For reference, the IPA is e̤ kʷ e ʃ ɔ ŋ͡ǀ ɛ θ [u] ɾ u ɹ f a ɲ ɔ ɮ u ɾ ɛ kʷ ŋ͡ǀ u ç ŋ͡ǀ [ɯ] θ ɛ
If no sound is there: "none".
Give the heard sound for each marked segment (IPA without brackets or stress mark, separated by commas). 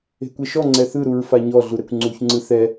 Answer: ɯ, ɯ